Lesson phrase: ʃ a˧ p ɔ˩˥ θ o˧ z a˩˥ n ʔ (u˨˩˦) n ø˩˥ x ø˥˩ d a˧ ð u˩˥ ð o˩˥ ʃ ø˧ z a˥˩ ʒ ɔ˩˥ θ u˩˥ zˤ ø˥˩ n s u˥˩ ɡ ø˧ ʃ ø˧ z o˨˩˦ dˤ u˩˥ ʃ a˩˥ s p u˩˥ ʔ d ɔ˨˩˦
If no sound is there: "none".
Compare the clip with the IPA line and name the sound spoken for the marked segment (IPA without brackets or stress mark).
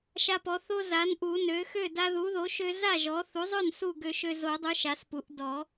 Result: u˨˩˦